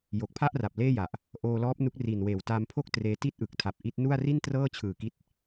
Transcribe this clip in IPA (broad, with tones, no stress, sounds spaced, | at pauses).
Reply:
j o˨˩ k̚ pʰ a˥˩ ʔ r a˨˩ p̚ l eː˥˩ j a˨˩ ʔ | ʔ oː˧ l ɔː˦˥ p̚ n u˦˥ k̚ r i˨˩ n w eː˨˩ w t aː˧ m pʰ o˥˩ k̚ t r eː˧ t i˥˩ t̚ ʔ ɯ˨˩ k̚ tʰ a˨˩ p̚ ʔ i˦˥ t̚ n u˥˩ a̯ r i˥˩ n t r ɤː˥˩ t͡ɕʰ ɯː˨˩ k i˦˥ t̚